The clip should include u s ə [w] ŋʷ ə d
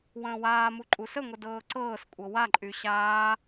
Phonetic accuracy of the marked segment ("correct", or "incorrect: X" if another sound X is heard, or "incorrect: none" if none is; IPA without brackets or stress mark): incorrect: none